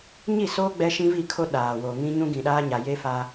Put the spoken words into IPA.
ɲ i˦˨ s oː˦ ɡ͡b ɛ˦ ʃ ĩ˦ v i˦˨ kʰ o˦ ɗ aː˨ w o˨ ŋ ĩ˦ ɲ ũ˦ ɡ ĩ˨ ɗ aː˦ ɲ a˨ j e˦ f a˦

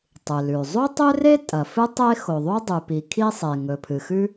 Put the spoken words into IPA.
tˤ ɨ˩ l ʉ˩ zˤ u˥ tˤ ɵ˥ r e˥ tʼ ɐ˩ f ɨ˥ tˤ e˥ x o˩ ðˤ u˥ dˤ ʉ˩ p i˩ kʰ i˥ sˤ e˩ ŋ ɵ˩ pʰ ɨ˩ x ʉ˥

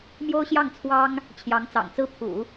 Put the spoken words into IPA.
m j o˥ ʊ̯ ɕ j ɑ˥˩ ŋ t͡sʰ w ɑ˥ ŋ | t͡ɕʰ j ɑ˧˥ ŋ t͡s ɑ̰˨˩ ŋ t͡s ɹ̩˥ pʰ ṵ˨˩˦

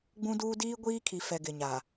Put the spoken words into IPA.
ɡ͡b ũ˦ d uː˦ d iː˦ ɡʷ iː˦ kʰ i˨ f ɛ˨ ɡ ɪ˨ ɲ a˨

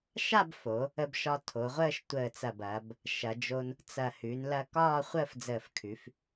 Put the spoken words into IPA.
ʃ a˥˧ b f o˩˧ | ə˧ b ʃ ɒ˧ tʰ o˩˧ ʁʷ əː˥˧ ʃ tʷ əː˧˩ t͡s ɐ˧˩ b ɐː˩˧ b | ʃ ɐ˩˧ d͡ʒ o˧ n | t͡s ɐ˧˩ h ʉ˩˧ n l ɐ˧ k ɒː˥˧ χʷ əː˥˧ f d͡z əː˧˩ f kʰ ʉ˩˧ f

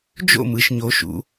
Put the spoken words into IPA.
d͡ʒ o̰˥˩ m ɯ˩˧ ʃ ɲ o˩˧ ʃ ṵ˩˧

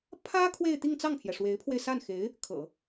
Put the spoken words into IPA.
pʰ ä˥ kʰ w e˥˧ ɪ̯ t̪ i˥˧ ŋ t͡s ɑ˥˩ ŋ pʰ j ɛ˩ ʂ w e˧˥ ɪ̯ pʰ w e˧ ɪ̯ s a˥˩ n x e˧˥ ɪ̯ | kʰ ɤ̰˨˩˦

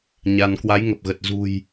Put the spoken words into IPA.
ɲ a˧ n k w a˨˦ j ŋ ə˨˩ p̚ ɣ ə˨˩ t̚ z ṳ˨˩ j

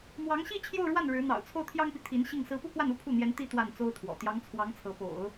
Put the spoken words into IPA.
m w ɑ˧˥ ŋ ɕ i˥˧ t͡ɕʰ j o˥˧ ʊ̯ ɻ w a˥˩ n ɻ ɻ̩˧˥ n̪ ɑ̰˨˩ ʊ̯ t͡sʰ o˥˩ ʊ̯ t̪ʰ j ɑ˥ ŋ p i˨ t̪ʰ i˧˥ n ɕ i˥˩ ŋ s ɹ̩˧˥ p u˥˧ k w a˥˩ n u˥ pʰ u˥˩ n̪ j ɛ˧˥ n t̪ i˥ t̪ w a˥˩ n t͡s o˥ ʊ̯ t̪ʰ w ɔ̰˨˩ t̪ j ɑ˧˥ ŋ t͡sʰ w ɑ˧˥ ŋ t͡sʰ ɤ˧˥ p o̰˨˩˦ ʊ̯

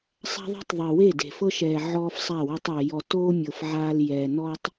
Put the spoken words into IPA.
sˤ a̤˦ ðˤ e̤˦ tˤ ðˤ i˨ w e˦˨ d e̤˨ f ɤ˦ ʃ ɛː˨ ʕ ɔː˦ f sˤ a˦˨ w a˦ tˤ ɤ˨ j ɔ˨ t oː˦ mʲ ɤ˨ f ʕ aː˦ l j ɛː˨ n ɔ˦ tˤ

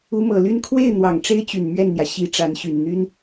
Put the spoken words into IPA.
u˧˥ m ɤ˨˩ l y˥˧ n kʰ w e˥˩ ɪ̯ n̪ w ɑ˨˩ ŋ ʈ͡ʂ e˥ ɪ̯ t͡ɕ y˨˩ n m ɥ ɛ˥˩ n n̪ j ä˩ ɕ i˧˥ ʈ͡ʂ a˧˥ n ɕ y˨˩ n n̪ y˥ n

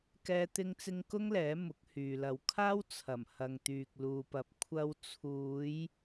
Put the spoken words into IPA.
k ɛː˥ t̪ ɪ˥ ŋ t͡s ɪ˥ ŋ k ʊ˥ ŋ l ɛː˨˥ m ʊ˨˥ k̚ h yː˨ l ɐ˨˧ w kʰ aː˥ w t͡sʰ ɐ˨˩ m h ɐ˨ ŋ t̪ yː˨ k̚ l uː˨ p ɐ˨ p̚ kʷʰ ɐ˧ w t͡sʰ uː˨˧ j

